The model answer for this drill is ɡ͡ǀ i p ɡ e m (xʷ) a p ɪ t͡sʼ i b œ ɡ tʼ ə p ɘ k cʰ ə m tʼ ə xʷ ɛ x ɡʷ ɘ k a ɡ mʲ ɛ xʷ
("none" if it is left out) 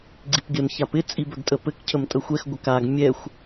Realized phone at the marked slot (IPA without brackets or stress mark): ç